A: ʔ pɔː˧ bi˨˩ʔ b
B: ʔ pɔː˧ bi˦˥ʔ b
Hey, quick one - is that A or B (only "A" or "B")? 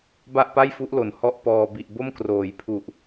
A